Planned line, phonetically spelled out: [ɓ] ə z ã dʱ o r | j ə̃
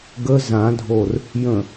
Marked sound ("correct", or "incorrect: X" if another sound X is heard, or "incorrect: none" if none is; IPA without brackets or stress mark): incorrect: ɡ